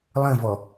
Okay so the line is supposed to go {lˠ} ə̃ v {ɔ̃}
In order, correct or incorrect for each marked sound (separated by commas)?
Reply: correct, incorrect